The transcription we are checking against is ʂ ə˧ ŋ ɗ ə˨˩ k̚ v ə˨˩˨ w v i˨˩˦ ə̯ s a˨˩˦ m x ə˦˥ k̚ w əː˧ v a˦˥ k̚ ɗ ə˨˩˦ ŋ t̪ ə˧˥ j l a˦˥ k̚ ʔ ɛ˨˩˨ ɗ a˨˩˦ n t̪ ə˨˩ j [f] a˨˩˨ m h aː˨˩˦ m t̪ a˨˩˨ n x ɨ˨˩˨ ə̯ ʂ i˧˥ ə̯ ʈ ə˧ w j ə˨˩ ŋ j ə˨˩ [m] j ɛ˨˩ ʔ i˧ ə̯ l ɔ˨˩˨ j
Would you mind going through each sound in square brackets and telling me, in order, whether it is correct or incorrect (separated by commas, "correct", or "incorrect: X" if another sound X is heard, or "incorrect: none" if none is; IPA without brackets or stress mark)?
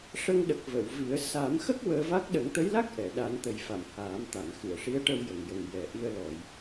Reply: correct, incorrect: ŋ